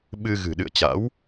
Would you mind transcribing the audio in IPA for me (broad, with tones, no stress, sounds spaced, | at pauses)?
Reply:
ɓ ɨ˧ ɣ ɨ̤˨˩ ɗ ɨ̰˧˨ ə̯ t͡ɕ a̰˧˥ w